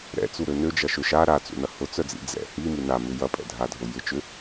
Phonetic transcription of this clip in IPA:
ɾ ɛ̰ t͡s u ɾ ø n ø d͡ʒ ɐ ʃ ø ʃ a ɾ a t͡s ṵ n ɐ h ʊ t͡s œ d͡z ḭ d͡z ɛ̰ h i m i n a m ʏ j ɐ pʼ ɛ̰ dʱ a dʱ ʊ j ɪ t͡ʃ ʏ

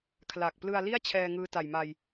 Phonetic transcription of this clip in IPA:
kʰ l a˨˩ k̚ p l ɯ˧ a̯ l i˥˩ a̯ t͡ɕʰ ɛː˧ ŋ ɯː˦˥ t a˨˩ j m a˧ j

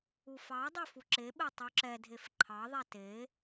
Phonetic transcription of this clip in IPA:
u f ɑ dˤ e f u ǁ e ɓ e tˤ u ǁ ɛ dʱ e f ǃʰ ɑ ðˤ ɛ t e

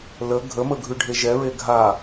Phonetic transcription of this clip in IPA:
l ə ɡʱ ə m ə ɡʱ ʉ ɖʱ e ʒ ɛ ɹ e ɡʱ a

